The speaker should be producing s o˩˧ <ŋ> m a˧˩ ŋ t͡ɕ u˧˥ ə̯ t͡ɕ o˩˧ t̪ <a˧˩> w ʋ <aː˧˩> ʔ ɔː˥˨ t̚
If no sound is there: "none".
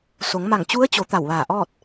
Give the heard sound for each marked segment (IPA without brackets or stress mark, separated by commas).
ŋ, a˧˩, aː˧˩